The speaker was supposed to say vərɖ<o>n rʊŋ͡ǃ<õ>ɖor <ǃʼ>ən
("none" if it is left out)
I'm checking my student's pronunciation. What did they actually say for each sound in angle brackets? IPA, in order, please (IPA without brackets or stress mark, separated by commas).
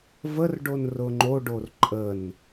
o, o, ǃʼ